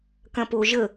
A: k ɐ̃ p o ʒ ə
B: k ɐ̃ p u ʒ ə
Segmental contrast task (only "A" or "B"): A